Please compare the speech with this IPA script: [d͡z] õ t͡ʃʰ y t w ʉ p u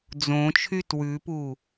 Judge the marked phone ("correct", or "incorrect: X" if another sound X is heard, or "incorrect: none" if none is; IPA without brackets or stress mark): correct